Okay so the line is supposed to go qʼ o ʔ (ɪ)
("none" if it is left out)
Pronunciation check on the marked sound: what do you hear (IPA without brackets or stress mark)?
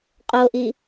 i